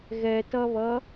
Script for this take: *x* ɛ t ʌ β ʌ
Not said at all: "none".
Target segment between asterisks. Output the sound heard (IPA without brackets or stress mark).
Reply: ɣ